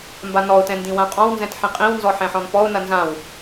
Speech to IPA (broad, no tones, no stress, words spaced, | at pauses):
mbanɔʊ̯tɛ̃ ndĩwãqʼɔ̃wnzɛ̃t ħĩqʼĩwnzɔ ħɛ̃ħɔ̃npɔʊ̯nɐ nzãw